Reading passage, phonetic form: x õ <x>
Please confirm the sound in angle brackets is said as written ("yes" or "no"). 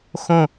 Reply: no